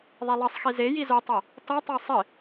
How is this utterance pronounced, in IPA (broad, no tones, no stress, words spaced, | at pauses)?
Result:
ðˤelˠɜsˤxi ze jizotˤɜ | tɔtˤœ sˤɪ